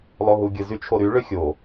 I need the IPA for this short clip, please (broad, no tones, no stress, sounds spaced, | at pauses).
lˠ o ɦ u ɡʲ ɯ z y t͡ʃʰ o ɾ y ɭ ø xʲ o